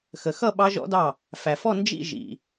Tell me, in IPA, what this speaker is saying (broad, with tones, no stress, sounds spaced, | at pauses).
x ə˩ x ʌ˥˧ ɓ ɑ˦˥ ʒ ɔ̰˦˥ d ɑ˥˩ | f æ˩ f ɔ˥˧ n d͡ʒ ḭ˥˧ ʒ ḭ˩